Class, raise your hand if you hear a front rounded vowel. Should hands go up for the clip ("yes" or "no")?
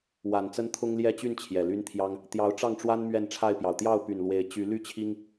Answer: yes